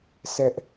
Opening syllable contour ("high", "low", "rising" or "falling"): high